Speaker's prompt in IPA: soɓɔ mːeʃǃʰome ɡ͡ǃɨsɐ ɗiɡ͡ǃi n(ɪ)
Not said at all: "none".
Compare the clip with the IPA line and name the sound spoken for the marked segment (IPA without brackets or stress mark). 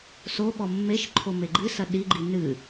ɨ